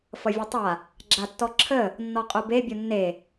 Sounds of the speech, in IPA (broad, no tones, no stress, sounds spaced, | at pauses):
f ʌ vʲ ʌ tˤ a | ɡ͡ǁ a tː ɔ ǁʰ ə | nː ɔ qʼ o b e bʲ o nː e